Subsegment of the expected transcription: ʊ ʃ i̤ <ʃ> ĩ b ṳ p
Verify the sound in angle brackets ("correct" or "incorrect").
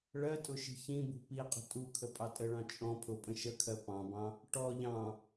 incorrect